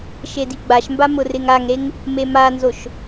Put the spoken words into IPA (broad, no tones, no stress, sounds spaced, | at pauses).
ʃ e d i ɡ͡b a ʃ m b a m ʊ r ɪ ŋ a ŋ ɾ e ŋ | m e m a n z o ʃ